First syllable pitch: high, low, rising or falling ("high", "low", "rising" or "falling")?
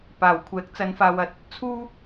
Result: low